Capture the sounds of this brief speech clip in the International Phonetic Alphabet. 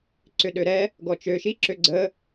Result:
ǀ ʏ ɗ ø ɾ ɛ | ɡ ɔ t͡ʃ ø ʃ i ǁ ø ɡ͡ǀ ə

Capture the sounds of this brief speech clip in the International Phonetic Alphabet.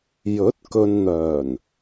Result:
j ɵ˨˥ t̚ k ɵ˨ n n̪ œː˨˩ n

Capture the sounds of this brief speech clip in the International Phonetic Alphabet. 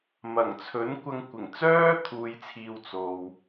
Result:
m ɐ˨˩ ŋ t͡sʰ ɵ˨˥ n kʷ ɐ˧ ŋ kʷ ɪ˨˩ ŋ t͡s œː˥ t̪ʰ uː˨ j t͡sʰ iː˨ w t͡s o˨ w

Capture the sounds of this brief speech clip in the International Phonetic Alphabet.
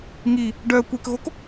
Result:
ŋ i | ɖ œ kʷ e k ɣ o k

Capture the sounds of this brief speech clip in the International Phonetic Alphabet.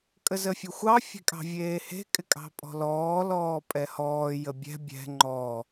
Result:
kʼ ə z ə fʲ ʊ xʷ ɑ fʲ e̤ kʼ ɑ̤ vʲ eː h e̤ kʼ ɪ kʼ ɑ̤ pʼ ɔ̤ l ɔː l ɔː pʼ ɛ h ɔː j ə bʲ ɛ̤ bʲ ɛ̤ ŋ͡ǃ ɔ

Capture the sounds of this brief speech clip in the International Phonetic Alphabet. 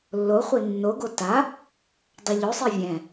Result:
lː o χʷ i nː o ɡ o t a | dˤ a ʎ o sˤ i vʲ ɛ̃

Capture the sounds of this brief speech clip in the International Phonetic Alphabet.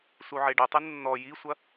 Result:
s u ʕ e ɖ ɐ tˤ ɨ nː ɔ j i sʷ ɐ

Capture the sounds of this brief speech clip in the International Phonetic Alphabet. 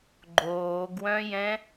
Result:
ɡ͡ǃ oː ɡ w œ̃ j ɛ̃

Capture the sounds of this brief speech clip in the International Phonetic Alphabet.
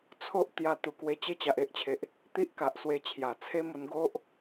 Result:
t͡sʰ o˦ ʔ t̪ j a˧ t̪ u˨˩ k w e˧ t͡ɕ e˦ t͡ɕ a˨ ʔ e˦ ʔ t͡ɕʰ e˨ ʔ | t̪ i˦ ʔ k a˨ ʔ s w e˧ t͡ɕʰ j a˨˩ t͡sʰ e˦ m o˧ n ɡ o˦ ʔ

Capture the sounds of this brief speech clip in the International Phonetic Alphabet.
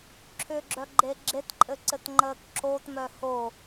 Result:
ǁʰ ʏ ɡ͡ǁ œ ɡ͡ǃ e ɡ͡ǁ e t ǃʼ ɘ ǀ ɘ t ŋ͡ǃ əː k ǁ o t m œ h o

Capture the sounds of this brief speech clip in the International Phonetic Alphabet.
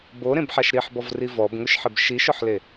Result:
b o ɾ ẽ b ħ a ʃ ɾ i ħ b ɔ v r i v ɔ b ŋ ʊ ʃ ħ ɪ b ʃ i ʃ ʊ ħ l e

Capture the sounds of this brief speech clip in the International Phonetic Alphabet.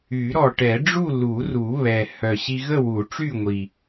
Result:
y˨˩˦ ɾ ɔ˨˩ ʈ ɛ˨˩˦ ɖ͡ʐ u˥˨ l u˨˩˦ r u˨˩˦ β ɛ˨˩ h œ˨˩ ɕ i˧ ɣ ə˥˨ w u˨˩˦ ʈ͡ʂ y˥˨ ŋʷ i˨˩

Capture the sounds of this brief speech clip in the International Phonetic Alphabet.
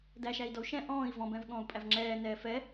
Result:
d æ ʃ æ i̯ d ɔ u̯ ʃ ɛ̃ ʔ ɔ̃ː i̯ v ɔ̃ b ɛ̃ v ɠ ɔ̃ː u̯ pʼ æ v ŋ͡ǁ ɛː n ɛː f ɛ

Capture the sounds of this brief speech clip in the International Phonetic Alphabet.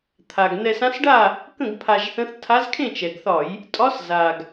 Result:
t̪ʰ a˨˩ ɡ n̪ ɛ˧ s ã˧˥ s ɖ a˥˨ | k ə̃˥˨ ɡ pʰ a˧ ʒ θ ə̃˧˥ θ tʰ a˧˥ z kʰ ẽ˥˨ t͡ʃ ɛ˨˩ ɡ θ ɒ˧˩˧ j | tʼ ɒ˧˥ s z a˨˩ ɡ

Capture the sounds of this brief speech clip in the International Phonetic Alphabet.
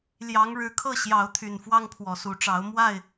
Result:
l j ɑ˨˦ ŋ ɻ ɻ̩˨˩ kʰ ɤ˥˨ ɕ j ɑ˨˦ ʊ̯ t̪ʰ y˨˩ n f w ɑ˦ ŋ pʰ w ɔ˨˩ s u˨˦ ʈ͡ʂ ɑ˨˦ ʊ̯ m w a˥˨ ɪ̯

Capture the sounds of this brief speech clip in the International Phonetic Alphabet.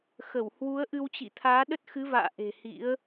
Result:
x ə˧˩ w h w u˨˦ ə̯ ʔ ɨ˧ w t͡ɕ ḭ˧˨ t̪ʰ aː˨˦ ɗ ə˦˥ t̚ x ɨ˨˦ v a̰ː˧˨ ʔ e̤˨˩ h ḭ˧˥ ə̯

